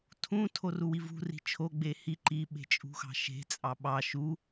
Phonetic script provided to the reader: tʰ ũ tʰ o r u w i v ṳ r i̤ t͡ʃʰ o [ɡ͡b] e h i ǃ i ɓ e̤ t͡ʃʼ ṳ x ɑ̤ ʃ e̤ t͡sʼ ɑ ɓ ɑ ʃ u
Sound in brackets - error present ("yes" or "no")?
no